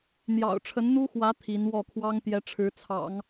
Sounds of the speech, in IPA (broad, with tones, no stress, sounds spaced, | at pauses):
n̪ j ɑ̰˨˩ ʊ̯ ʈ͡ʂʰ ə˧˥ n n̪ u˥ x w ä˧˥ t̪ʰ i˧˥ n w ɔ˥˩ kʰ w ɑ˥ ŋ t̪ j ɛ˧˥ ʈ͡ʂʰ ɻ̩˧˥ t͡sʰ ɑ̰˨˩˦ ŋ